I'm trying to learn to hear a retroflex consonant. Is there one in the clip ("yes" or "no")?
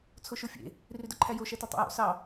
no